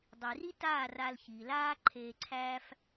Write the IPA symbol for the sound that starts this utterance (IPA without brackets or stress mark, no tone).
dˤ